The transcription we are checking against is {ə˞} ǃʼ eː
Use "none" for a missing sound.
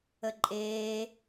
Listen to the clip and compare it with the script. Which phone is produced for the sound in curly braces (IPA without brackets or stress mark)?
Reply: ə